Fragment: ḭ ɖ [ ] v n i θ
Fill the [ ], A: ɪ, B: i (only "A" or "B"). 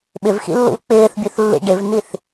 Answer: A